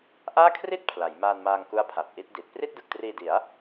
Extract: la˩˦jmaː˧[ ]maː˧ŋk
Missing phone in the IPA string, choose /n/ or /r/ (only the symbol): n